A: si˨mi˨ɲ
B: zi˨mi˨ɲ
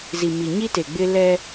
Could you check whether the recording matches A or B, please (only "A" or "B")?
B